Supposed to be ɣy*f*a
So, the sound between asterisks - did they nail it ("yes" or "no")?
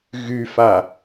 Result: yes